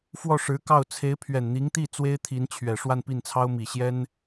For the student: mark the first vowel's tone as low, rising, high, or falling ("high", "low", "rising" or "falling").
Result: falling